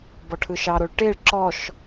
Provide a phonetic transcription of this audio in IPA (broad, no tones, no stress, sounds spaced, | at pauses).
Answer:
b ɔ ʈʰ ɯ ʃ ɑ ɾ o ɭ ʈ e ɭ ǁ ɔ ʃ